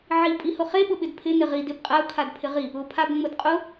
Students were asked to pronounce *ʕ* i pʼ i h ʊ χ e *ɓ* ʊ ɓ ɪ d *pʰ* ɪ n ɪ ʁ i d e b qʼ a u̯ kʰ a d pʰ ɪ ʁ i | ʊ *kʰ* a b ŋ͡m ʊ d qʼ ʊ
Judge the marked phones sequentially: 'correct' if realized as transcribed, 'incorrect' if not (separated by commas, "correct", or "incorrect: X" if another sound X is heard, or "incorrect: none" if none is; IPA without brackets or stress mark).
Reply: correct, correct, correct, incorrect: pʰ